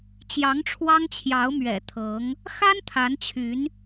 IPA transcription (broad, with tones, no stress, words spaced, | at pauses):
t͡ɕjɑ˧˥ŋʈ͡ʂʰwɑ˥ŋt͡ɕʰjɑ˧˥ʊ̯ mɥɛ̰˨˩t̪ʰɤ˧˥ŋ | xa˥n t̪ʰa˧˥nt͡ɕʰy˧˥n